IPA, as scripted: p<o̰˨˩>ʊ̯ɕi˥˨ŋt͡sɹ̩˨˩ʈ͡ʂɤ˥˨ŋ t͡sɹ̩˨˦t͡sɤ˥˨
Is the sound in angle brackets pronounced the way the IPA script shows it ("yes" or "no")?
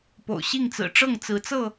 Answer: yes